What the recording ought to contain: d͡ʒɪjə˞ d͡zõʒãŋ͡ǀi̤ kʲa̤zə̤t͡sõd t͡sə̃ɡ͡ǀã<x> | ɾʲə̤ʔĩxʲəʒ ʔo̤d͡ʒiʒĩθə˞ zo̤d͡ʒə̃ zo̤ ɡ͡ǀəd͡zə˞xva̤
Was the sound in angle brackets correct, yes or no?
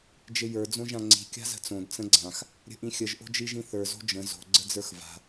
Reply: yes